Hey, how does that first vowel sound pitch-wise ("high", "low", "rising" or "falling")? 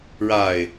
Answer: low